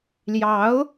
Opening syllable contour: rising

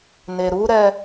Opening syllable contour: low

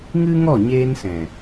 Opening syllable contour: high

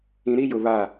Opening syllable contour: low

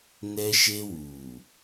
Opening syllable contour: high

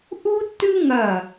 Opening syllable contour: high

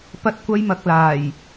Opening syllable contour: high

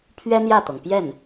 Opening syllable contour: high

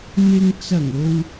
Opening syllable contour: low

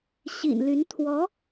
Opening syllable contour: low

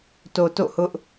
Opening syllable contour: low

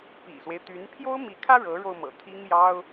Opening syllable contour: low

